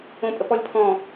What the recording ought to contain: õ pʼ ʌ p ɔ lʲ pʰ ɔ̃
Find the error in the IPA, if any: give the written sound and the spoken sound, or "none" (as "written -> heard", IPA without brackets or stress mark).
ʌ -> ə